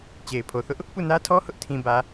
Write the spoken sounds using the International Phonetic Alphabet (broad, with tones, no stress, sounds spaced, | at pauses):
t͡ɕ e˨ ɪ̯ pʰ o˨ θ ʊ˦ ʔ | p u˦˨ n ä˦ tʰ ɔ˦ h ʊ˦ ʔ tʰ ĩ˨ b ä˨